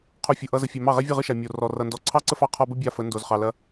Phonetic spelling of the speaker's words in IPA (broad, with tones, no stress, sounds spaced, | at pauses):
qʰ o˧ fʲ ɯ˨ ʔ ʌ˦ z ə˧ fʲ ɛ˧ m ɑ˦˨ ʁ ɛ˦ vʲ ɯ˦˨ ʁ ɯ˦ ʃ a˨ mʲ o˨ r ɔ˨ r ʌ˨ n d ɔ˨ ǀʰ ɑ˦ ǀ ə˦ f ɑ˧ qʰ ɔ˧ b ə˦ bʲ a˦ f ə˨˦ n d o˨ z χ ɑ˨ l ɐ˧